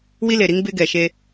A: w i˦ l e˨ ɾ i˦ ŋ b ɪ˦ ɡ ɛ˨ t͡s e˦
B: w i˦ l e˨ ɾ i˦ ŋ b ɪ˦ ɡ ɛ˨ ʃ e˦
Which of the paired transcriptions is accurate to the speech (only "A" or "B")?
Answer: B